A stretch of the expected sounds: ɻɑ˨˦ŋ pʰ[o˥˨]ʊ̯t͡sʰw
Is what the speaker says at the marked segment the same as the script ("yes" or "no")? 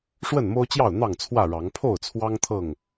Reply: yes